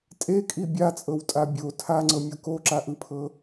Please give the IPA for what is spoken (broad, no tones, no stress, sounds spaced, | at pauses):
tʼ e kʼ i bʲ a t͡sʼ ɤ w tʼ a bʲ o tʰ a ŋ͡ǀ ɤ mʲ o k o ǁ a ʔ ɯ pʰ ɤ